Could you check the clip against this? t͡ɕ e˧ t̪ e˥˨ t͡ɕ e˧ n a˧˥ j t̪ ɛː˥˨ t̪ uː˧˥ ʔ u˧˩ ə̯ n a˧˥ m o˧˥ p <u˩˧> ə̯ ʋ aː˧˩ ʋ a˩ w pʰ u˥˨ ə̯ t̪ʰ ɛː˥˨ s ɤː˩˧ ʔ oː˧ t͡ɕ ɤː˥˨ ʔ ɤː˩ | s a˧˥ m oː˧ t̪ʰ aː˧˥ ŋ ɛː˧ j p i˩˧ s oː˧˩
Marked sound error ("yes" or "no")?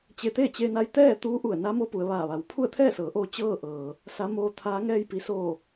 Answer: no